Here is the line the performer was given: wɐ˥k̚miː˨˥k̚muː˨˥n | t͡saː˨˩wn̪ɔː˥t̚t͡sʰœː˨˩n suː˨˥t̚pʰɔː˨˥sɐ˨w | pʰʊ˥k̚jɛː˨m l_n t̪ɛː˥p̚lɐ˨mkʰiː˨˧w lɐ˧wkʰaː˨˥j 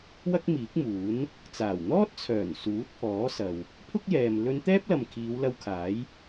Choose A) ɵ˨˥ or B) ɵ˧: B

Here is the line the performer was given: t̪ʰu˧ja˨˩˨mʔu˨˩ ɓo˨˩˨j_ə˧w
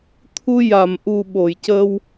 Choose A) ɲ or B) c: B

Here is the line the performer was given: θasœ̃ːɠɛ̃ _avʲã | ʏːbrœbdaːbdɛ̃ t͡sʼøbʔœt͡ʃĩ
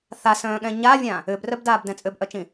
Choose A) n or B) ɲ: B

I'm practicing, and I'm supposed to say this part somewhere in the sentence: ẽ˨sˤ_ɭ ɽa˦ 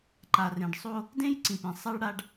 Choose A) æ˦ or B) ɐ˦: A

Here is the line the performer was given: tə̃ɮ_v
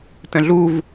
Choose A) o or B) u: B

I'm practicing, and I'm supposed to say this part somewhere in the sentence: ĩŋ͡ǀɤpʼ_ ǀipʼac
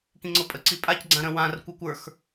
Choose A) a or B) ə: B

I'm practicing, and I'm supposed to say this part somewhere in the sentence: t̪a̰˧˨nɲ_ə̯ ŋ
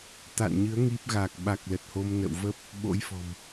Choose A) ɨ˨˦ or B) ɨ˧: A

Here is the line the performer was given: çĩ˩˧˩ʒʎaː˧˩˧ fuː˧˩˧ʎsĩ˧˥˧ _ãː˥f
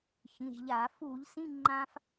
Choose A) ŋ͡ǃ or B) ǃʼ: A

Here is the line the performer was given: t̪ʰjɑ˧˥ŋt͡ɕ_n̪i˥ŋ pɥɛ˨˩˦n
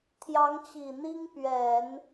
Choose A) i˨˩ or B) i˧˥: A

